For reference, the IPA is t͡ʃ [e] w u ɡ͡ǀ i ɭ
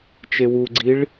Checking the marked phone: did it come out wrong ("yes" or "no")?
no